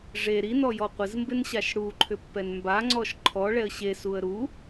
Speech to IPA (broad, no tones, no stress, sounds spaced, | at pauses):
ʐ e ɾ i n ɔ j ɔ qʷ ɪ z m b ɪ n ɕ a ʃ ɽ u ǃʰ ʏ pː ɛ n m b a ŋ͡ǀ ɔ ʃ ǃʰ ɔ ɭ ɛ ə̯ ɕ e s u ə̯ ɾ u